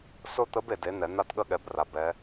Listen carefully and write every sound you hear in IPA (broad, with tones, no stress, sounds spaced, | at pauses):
s ʊ˥˧ t̪ ə˦˥ b e˨ d e˨˥ n̪ ɛ˨˩˦ n̪ a˥˧ t ɠ ə˥˧ ɠ ɛ˨˥ b r a˨ b ɛ˦˥